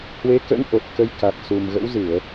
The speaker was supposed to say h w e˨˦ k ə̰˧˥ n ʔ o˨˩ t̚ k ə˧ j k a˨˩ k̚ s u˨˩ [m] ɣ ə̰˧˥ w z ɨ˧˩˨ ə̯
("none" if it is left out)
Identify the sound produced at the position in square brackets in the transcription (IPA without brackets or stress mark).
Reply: m